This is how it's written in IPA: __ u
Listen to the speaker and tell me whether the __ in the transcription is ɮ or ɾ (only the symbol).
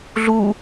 ɮ